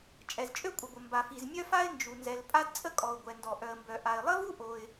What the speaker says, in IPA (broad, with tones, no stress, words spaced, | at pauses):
t͡ʃʼɛ˩zt͡ʃʼø˥kʷʼə˩ɡʷə˩ mba˩fi˩zmʲœ˥fa˥ɪ̯ nd͡ʒu˩nzɛ˩l pʼa˥dt͡sʼə˥kʼɔ˩ʊ̯ ɡʷɛ˩ndɔ˩ ʔœ˩ə̯mbœ˩ ʔa˩ɪ̯lˠə˥vu˥ ʔo˩ɪ̯